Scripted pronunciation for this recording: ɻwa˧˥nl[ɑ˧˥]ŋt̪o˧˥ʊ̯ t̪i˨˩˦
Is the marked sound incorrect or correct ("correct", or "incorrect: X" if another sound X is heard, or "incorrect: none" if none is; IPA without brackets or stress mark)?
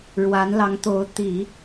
correct